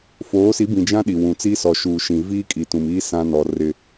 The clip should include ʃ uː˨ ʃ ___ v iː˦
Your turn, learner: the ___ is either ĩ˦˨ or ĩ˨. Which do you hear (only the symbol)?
ĩ˨